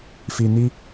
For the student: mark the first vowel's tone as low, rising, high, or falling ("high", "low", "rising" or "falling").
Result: low